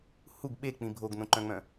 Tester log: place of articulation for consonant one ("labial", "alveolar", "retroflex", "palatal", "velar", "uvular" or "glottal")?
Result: glottal